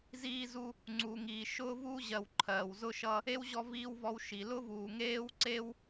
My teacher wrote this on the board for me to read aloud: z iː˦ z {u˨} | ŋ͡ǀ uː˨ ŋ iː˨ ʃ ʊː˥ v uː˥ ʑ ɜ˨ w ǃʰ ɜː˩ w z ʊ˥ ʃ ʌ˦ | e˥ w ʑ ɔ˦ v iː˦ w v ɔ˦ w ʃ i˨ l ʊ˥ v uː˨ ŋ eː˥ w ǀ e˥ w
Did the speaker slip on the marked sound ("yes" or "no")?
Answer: yes